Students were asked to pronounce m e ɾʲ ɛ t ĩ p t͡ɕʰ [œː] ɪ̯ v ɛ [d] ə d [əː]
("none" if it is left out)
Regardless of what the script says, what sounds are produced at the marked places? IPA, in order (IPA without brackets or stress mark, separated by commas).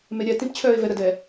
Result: œː, ɾ, ɛː